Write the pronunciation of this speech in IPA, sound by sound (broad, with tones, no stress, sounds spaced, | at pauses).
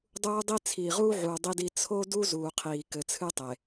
dˤ uː˦ dˤ i˦ t͡sʰ iː˨ ʁ uː˦ ʕ uː˨ dˤ i˦ d i˦ t͡sʰ o˦ d u˦ z uː˨ qʰ iː˨ k ɘ˨ t͡sʰ ɨ˦ tˤ e˨